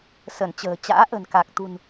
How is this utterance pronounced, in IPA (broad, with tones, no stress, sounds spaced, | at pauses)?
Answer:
s ə˧˩ n t͡ɕ ə̤ː˨˩ t͡ɕ a̰ː˧˥ ʔ ə̤˨˩ n k a˨˩ k̚ t̪ ṳ˨˩ n